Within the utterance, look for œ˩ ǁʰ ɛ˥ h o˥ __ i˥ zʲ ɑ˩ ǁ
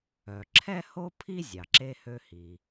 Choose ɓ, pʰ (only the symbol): pʰ